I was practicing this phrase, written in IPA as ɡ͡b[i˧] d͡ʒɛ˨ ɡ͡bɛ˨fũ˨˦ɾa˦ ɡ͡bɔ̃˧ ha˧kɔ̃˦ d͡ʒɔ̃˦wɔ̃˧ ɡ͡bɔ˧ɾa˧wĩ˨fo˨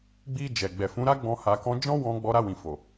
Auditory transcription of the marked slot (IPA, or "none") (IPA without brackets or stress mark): i˧